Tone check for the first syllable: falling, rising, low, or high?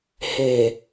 low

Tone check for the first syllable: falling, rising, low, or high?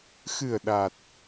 low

